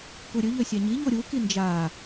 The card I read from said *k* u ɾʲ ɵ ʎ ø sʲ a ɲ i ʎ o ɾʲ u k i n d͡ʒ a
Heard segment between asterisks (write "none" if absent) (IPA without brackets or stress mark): k